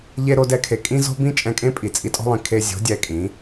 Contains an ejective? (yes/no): yes